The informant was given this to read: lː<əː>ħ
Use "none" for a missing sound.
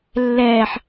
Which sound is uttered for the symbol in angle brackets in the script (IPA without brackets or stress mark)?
ɛː